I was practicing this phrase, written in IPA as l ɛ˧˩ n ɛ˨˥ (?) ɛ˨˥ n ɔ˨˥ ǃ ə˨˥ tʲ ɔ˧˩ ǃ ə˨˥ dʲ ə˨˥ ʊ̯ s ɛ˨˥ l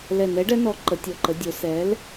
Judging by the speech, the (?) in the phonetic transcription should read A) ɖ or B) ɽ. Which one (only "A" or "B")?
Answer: A